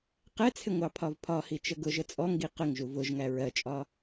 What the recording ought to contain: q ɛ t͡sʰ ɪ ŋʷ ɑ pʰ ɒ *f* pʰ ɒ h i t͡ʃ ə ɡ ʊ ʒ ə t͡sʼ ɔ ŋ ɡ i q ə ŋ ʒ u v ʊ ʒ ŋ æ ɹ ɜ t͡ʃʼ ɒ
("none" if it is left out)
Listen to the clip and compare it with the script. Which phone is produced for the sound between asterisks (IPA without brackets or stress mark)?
v